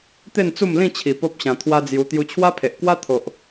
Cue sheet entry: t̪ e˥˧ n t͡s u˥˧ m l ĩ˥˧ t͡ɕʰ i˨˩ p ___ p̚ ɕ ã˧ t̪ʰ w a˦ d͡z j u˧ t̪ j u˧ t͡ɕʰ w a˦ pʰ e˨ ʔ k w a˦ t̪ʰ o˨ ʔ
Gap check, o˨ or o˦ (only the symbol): o˦